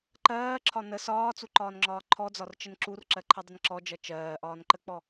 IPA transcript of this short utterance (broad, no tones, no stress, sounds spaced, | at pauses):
ǃ ɜː ǁʰ ɒ n ə s ɒː t͡s u ǃ ɒː n ŋ͡ǁ ɒː ǃʰ ɔ d͡z ɒ r t͡ʃ ə n ǁ u r ǁ ɜ ǃʰ ʌ dˤ ə n ǁ ɔ d͡ʒ ʌ t͡ʃ ɜː ʔ ɒː n ǃ ə k͡p ɔ